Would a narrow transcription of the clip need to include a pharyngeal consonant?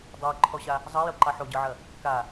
yes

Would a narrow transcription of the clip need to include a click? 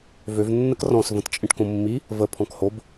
no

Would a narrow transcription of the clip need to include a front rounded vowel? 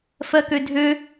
yes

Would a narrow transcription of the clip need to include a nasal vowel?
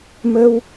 no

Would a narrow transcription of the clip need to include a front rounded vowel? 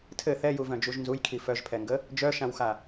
yes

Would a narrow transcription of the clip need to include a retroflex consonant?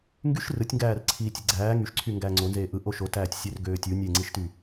no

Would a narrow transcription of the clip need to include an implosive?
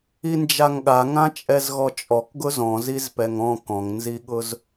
yes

